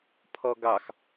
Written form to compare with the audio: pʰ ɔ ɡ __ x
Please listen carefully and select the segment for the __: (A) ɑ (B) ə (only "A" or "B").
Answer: A